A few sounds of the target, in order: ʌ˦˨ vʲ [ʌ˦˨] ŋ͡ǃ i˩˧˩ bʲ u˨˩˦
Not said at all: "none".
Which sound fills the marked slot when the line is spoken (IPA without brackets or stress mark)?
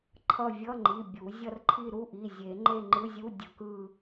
ʌ˧˥˧